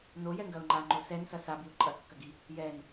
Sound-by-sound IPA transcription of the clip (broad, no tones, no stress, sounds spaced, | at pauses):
n o j ɛ ŋ ɡ ɐ ʊ̯ ŋ͡ǃ a ŋ͡ǃ o s ɛ n s ɐ s a b i ʊ̯ ǃʼ ɐ kː ɐ ɡ i | j ɛ n